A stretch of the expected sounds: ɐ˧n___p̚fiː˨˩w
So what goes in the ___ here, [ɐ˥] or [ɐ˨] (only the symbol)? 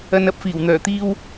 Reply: ɐ˥